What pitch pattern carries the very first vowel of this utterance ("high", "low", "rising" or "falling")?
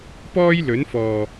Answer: high